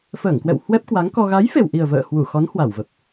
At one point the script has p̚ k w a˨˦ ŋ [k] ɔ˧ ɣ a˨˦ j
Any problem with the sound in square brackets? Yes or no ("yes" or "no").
no